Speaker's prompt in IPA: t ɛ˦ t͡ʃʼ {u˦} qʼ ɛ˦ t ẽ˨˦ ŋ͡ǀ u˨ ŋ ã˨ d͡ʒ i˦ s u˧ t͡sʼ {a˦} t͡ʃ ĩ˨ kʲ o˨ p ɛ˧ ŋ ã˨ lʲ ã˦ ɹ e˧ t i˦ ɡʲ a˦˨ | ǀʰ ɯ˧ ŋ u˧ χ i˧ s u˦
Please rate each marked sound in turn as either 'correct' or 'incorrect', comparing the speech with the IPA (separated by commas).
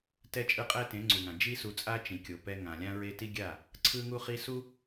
incorrect, correct